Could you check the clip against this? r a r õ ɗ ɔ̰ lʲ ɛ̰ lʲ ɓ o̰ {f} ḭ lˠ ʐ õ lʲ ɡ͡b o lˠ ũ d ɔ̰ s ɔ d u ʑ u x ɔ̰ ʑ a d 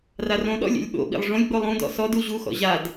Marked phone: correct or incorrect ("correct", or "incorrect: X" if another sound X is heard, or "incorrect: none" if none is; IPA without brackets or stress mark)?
incorrect: ɓ